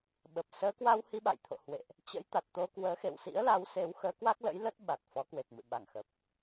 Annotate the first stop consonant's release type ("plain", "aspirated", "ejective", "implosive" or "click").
implosive